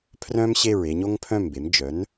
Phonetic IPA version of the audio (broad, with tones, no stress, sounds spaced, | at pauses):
pʰ r œ̃˥ m ɕ e˥˩ ɹ e˧ ɲ o˥ ŋ pʰ œ̃˥˩ m b e˩˥ m d͡ʒ œ˩˥ n